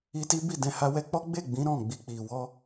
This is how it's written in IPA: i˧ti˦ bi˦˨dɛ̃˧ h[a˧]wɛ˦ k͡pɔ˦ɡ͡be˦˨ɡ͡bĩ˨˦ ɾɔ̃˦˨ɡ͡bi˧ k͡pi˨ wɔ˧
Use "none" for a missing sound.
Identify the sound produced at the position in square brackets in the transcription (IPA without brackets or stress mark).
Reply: a˦